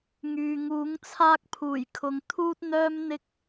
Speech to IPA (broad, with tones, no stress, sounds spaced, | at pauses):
ŋ yː˨ ŋ uː˨˥ ŋ t͡sʰ aː˥ k̚ pʰ uː˨˩ j kʰ ʊ˨ ŋ t̪ʰ uː˥ t̚ n̪ œː˥ m n̪ ɪ˥ k̚